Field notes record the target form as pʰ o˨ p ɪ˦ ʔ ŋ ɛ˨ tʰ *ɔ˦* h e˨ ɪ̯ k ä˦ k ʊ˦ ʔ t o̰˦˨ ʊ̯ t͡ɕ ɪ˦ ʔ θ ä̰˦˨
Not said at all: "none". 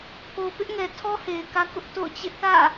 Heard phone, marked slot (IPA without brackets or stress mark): ɔ˦